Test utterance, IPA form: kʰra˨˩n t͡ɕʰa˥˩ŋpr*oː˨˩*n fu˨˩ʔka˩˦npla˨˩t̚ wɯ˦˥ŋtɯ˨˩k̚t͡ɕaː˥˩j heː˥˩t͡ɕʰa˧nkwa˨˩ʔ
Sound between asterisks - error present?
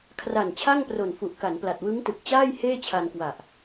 yes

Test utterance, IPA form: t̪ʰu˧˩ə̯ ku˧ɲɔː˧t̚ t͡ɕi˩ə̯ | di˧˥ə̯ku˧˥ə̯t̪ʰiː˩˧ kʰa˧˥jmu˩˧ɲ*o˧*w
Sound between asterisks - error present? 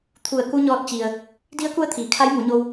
no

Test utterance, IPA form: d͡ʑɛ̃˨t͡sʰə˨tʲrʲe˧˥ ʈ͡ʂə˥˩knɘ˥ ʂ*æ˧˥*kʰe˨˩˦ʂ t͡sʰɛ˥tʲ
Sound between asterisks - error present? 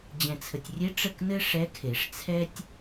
yes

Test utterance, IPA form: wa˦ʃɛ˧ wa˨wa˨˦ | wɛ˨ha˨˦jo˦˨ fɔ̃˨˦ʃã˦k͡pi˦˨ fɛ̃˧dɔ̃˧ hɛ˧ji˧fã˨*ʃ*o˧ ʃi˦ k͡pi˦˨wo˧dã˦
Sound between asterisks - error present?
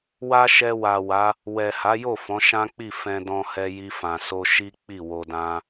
yes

